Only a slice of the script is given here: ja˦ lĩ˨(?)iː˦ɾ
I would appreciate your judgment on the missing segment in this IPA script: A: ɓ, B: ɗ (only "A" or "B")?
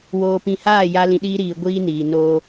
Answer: B